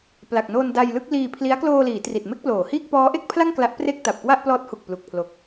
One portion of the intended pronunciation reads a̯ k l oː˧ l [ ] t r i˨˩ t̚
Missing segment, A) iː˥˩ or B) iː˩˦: B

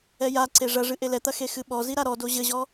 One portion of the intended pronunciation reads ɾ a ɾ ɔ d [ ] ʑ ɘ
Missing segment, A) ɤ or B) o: B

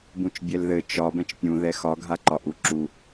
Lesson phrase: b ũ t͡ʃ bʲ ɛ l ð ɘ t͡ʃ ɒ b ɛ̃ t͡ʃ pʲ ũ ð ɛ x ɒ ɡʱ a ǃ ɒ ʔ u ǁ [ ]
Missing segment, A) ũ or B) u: B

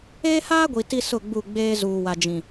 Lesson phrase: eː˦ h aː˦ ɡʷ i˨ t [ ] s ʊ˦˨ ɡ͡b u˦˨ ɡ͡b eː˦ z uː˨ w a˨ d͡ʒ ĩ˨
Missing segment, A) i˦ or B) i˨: A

